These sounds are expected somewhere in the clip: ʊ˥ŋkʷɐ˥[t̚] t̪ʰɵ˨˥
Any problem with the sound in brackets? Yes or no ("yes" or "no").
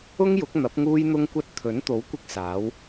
no